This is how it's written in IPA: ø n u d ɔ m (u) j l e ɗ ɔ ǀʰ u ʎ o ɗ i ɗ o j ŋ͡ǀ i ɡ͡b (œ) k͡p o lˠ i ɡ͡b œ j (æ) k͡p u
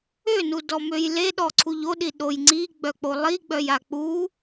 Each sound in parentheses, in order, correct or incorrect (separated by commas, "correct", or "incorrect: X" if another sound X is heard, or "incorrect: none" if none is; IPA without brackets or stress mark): incorrect: ø, correct, incorrect: a